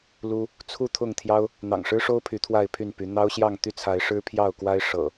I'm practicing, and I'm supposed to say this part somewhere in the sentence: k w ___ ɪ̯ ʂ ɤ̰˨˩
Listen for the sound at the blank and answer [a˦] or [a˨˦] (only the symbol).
a˦